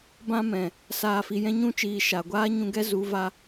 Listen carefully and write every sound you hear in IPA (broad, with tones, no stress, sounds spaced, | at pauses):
b ã˧ m ɛ̃˨ | s aː˨ f i˨ j ɛ̃˧ ɲ ũ˧ t͡ʃ iː˨ ʃ a˨ ɡʷ aː˦ ɲ ũ˧ ɡ ɛ˦ z u˨˦ v a˦